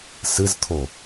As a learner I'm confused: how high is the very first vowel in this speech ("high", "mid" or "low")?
high